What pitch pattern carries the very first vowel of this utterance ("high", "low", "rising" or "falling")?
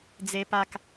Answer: high